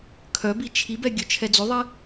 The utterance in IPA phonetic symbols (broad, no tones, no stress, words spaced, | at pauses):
kʰœbi t͡ʃʰibɛ ɡʲœt͡ʃʰɛd͡zoðˤe